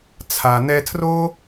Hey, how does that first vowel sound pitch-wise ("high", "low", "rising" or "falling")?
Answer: low